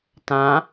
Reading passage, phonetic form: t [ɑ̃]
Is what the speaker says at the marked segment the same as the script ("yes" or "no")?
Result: no